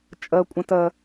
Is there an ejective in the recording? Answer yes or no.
yes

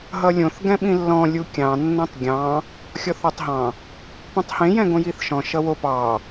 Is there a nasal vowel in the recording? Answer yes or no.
yes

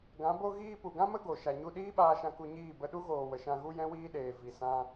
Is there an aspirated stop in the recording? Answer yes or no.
no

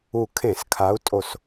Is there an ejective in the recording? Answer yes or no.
yes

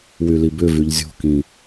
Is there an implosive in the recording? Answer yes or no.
no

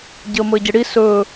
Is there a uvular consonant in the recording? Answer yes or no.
no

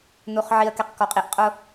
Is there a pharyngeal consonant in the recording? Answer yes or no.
yes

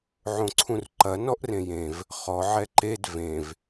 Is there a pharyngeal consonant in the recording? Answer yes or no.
yes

